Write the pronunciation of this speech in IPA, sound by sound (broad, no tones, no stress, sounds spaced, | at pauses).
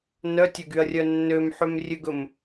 n œ tʲ ø ɡ y ɐ̯ rʲ œ nː ø m ħ ø m rʲ ø ɡ ɵ m